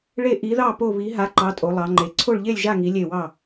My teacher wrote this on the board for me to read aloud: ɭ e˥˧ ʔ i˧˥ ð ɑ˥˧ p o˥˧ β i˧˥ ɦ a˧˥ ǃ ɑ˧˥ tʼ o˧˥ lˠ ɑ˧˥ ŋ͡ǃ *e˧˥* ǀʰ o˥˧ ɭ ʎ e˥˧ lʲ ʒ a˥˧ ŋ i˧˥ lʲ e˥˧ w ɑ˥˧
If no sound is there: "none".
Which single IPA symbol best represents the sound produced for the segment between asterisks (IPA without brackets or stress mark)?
e˧˥